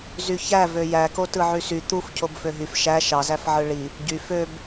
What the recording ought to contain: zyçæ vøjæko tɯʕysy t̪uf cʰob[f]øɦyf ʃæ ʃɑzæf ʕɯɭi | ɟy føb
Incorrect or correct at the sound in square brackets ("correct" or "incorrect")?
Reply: correct